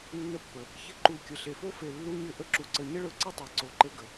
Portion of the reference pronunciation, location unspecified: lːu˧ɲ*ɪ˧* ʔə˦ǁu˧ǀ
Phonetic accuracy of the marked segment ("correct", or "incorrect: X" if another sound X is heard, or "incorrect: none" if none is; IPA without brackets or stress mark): correct